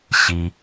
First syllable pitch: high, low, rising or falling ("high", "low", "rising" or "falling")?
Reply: low